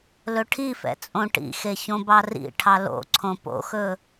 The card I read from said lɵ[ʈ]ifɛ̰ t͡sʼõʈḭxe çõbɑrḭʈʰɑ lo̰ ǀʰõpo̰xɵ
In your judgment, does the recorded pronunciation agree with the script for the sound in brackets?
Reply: no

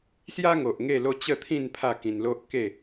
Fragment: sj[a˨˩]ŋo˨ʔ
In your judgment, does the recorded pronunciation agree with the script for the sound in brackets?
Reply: no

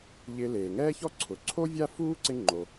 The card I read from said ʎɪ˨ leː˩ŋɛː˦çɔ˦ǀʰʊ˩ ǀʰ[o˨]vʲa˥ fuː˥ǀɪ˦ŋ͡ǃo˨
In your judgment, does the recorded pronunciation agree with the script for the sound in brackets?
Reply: no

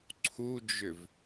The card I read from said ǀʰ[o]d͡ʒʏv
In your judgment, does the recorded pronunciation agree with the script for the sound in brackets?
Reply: no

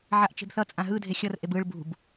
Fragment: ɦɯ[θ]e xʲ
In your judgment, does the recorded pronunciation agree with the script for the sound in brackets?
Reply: no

